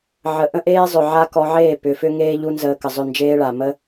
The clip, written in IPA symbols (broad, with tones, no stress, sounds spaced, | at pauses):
ʕ ə˨ ʔ ə̃˦ ʔ eː˦ zˤ ʏ˨ ʕ a˦ k ɔ˧ ʕ eː˦˨ p ʏ˨˦ f ʏ˦ ŋ eː˦ ʎ u˦ n z əː˧ k ə˨ zˤ ʏ˦˨ n d͡ʒ eː˦ ɭ a˨ m ə˦